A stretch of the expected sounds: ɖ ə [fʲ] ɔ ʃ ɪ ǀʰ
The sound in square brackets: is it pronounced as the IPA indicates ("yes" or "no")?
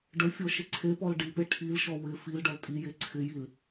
yes